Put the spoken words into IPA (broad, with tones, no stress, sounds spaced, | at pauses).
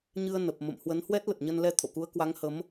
ɲ ɨ˧ ə̯ n ə˨˩ p̚ m ə̰˧˨ m h w ə˨˦ n h w ɛ˦˥ t̚ l ə˨˩ t̚ ɲ ə˧ n l ɛ˧ t̪ʰ o̰˧˨ k u˨˦ ə̯ k w a˨˦ ŋ h ə˨˦ m